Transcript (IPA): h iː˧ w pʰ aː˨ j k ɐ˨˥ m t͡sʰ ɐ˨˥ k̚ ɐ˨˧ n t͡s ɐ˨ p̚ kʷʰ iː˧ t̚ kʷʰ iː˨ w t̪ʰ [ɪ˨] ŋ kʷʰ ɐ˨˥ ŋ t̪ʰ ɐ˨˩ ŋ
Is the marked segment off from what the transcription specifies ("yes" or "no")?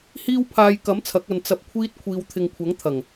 no